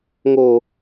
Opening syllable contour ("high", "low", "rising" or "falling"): low